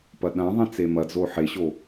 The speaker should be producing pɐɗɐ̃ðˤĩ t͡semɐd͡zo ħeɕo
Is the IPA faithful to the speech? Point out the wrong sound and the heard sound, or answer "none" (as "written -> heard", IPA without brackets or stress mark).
none